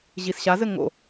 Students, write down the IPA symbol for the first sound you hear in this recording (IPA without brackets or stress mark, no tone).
ʑ